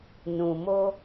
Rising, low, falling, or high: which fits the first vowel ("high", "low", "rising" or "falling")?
low